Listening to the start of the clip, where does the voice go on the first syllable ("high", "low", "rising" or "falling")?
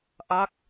falling